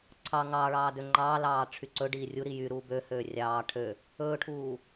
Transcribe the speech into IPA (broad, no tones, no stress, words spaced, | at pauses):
ǀʰɑ ŋɑɭɑː døŋ͡ǃɑːlɑː ʈ͡ʂʰyǀɵɖiː rʲuɾi jyɾuː bøhøː rʲɑː ʈʰø | ɵːʈʰuː